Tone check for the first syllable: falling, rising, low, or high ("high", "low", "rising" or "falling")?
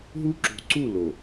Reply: high